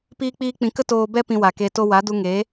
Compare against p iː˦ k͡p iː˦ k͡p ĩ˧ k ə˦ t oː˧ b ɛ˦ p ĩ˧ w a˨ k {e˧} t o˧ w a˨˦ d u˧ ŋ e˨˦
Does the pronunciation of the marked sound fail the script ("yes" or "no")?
no